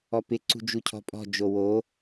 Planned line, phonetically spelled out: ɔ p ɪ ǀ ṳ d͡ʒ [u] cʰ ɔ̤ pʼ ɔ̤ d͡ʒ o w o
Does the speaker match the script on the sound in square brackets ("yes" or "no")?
yes